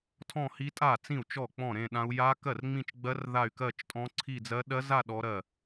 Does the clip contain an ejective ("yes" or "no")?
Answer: yes